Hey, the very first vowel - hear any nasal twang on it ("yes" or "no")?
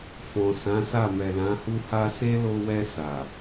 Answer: yes